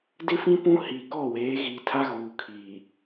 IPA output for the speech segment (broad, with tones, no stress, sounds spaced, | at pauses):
d ɪ˦ f ĩ˦ p ũ˦ h i˨ k ɔ˦˨ w eː˨˦ ɣ iː˨ tʰ a˦ ɣ uː˨ kʰ iː˨